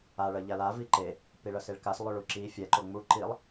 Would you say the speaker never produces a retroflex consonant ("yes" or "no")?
no